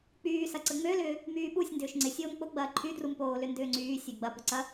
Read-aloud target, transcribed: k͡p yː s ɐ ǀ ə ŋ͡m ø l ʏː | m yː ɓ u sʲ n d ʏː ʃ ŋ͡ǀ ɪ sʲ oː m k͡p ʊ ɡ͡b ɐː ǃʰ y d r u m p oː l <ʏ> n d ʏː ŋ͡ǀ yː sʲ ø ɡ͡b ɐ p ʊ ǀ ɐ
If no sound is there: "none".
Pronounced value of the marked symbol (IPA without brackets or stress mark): ʏ